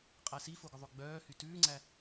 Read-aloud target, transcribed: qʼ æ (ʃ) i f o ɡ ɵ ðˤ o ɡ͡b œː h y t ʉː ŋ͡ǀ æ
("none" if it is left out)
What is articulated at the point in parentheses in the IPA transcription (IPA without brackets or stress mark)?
s